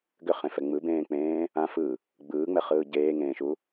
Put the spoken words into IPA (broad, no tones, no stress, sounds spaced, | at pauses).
ɡ ʏ χ ẽ f ɛ ŋ͡m ɯ b ẽː k͡p ẽː | ã f ɯ | ɡ͡b ɯː ŋ͡m ɛ χ ɯː ɟ eː ŋ ẽː ʃ u